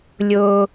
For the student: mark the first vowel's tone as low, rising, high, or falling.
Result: high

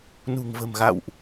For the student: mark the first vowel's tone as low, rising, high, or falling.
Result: low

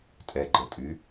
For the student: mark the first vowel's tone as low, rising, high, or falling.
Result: low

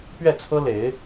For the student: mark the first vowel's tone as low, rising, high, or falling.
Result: falling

